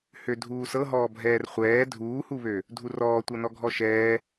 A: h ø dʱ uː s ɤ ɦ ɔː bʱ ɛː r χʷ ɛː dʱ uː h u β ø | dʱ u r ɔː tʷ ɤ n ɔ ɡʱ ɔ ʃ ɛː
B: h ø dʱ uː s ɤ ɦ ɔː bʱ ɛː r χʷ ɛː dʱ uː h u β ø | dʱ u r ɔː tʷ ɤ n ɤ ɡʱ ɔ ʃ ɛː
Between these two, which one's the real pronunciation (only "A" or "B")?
A